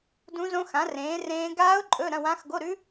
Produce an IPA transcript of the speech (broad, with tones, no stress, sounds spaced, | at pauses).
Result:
d ũ˦˥ z õ˦˥ x ã˨˥ r ẽː˨˥ r ẽː˦˥ ɡ aː˦˥ ʊ̯ ǃʼ ɵ˧˥˧ ɾ ɐ̃˧˥˧ w ã˦˥ x ɡ o˧˥˧ ɾ ʉ˦˥